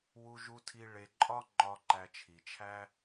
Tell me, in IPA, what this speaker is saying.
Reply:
w u˨ ʒ u˨ tʰ i˨ ɭ e˨ ǃʼ ɒ˦ ŋ͡ǃ ɒ˨ ǃ æ˨ t͡ʃʰ i˩ t͡ʃʰ æ˥

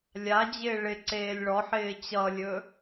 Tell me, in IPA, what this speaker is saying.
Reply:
lʲ a d͡ʑ ɪː ɭ ɪ ǀ eː lʲ ɭ ɔ ħ ɪː t͡ɕ ʌ lʲ ɵ

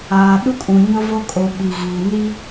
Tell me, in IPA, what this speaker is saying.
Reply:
aː˨ ɗ u˦ kʼ ũ˨ ɲ ʊ˦ v o˦ kʼ o˨ ɓ i˨ ɣ iː˨ n i˦

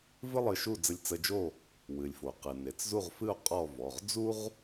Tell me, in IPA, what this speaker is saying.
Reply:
v ɨ˥ lˠ ɨ˧ ʃ u˥˨ d͡z ə˧ lʲ t͡s ə˧ d͡ʒ o˥˨ | w ɨ˩ lʲ f o˩ q ɨ˩ n e˩ t͡s z u˥˨ ʁ f ɨ˥˨ o̯ qʼ ɔ˥˨ v ɔ˩˧˩ ʁ d͡z u˥ ʁ

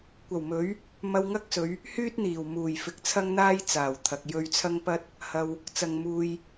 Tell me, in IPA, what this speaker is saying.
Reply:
kʷ ɐ˨˩ w m ɵ˨˥ ɥ | m ɐ˧ w ŋ ɐ˥ k̚ s ɵ˨˧ ɥ | h yː˥ t̚ n̪ iː˨˩ w m uː˨˩ j f ɪ˨ k̚ t͡sʰ ɐ˥ ŋ n̪ aː˥ j t͡s aː˨˩ w t̪ʰ ɐ˨ k̚ j ɵ˧ ɥ t͡sʰ ɐ˥ ŋ p ɐ˥ t̚ | h ɐ˧ w | t͡s ɐ˨ ŋ m uː˨ j

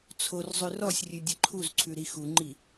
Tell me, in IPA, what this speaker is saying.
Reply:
t͡sʰ o r zˤ ʉ r ɔ sʲ rʲ ʉ dʲ ɘ ǃʰ u z ǀʰ ʉ ɾ i x u ŋ͡ǃ i

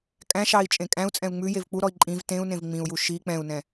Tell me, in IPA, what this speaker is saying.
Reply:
kʼ æ̃ ʃ ɑ i̯ t͡ʃʼ ẽ kʼ æ̃ u̯ t͡sʼ ɛ̃ u̯ ŋ͡m ʉ j e v k͡p u ɾ ɔ i̯ ǃʼ ĩ v t ẽ u̯ n ẽ v ŋ͡m ĩ u̯ j u ʃ i k͡p ɛ̃ u̯ n ɛ̃

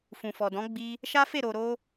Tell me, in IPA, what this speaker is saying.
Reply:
f ũ˨ f ɔ˨ d ɔ̃˨˦ ɡ͡b i˧ | ʃ a˦ f e˦˨ ɾ o˨ ɾ o˧

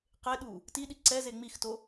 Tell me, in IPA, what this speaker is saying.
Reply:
q e ɗ u | t i ɗ i ǀ ɛ z e ŋ͡m i x t o

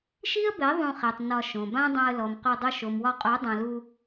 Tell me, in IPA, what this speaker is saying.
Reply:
ʃ i˦ ə̯ b ɛ˨˦ ðˤ ũ˧ χ ɛ˨ tˤ n ɒ˧ ʃ õ˨ b ã˦ dˤ ã˧ ə̯ l ɔ˨ m q o˧ dˤ o˧ ʃ o˨ m w ɒ˧ qʼ o˨˦ dˤ ã˨ l u˧

